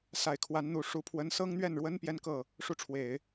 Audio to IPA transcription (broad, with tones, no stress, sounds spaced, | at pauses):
s a˨˩ ɪ̯ kʰ w a˧˥ n n̪ u˨˩ ʂ u˧˥ pʰ w ə˧˥ n s ɤ˥ ŋ n̪ ɥ ɛ˥˩ n ɻ w ə˥ n p j ɛ˥ n k ɤ˥˩ | ʂ u˥˩ ʈ͡ʂʰ w e˨˩˦ ɪ̯